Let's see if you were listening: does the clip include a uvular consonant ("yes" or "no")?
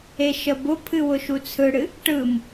no